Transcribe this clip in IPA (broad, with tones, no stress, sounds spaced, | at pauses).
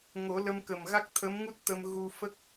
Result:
ŋ o˨˩˦ l ə˧ m k ə˨˩ m ɣ a˦˥ k̚ t̪ʰ ə˧˥ m ŋ u˦˥ t̚ t̪ ə˧ m ɣ u˧ f ə˦˥ k̚